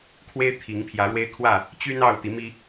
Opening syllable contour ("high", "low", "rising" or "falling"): high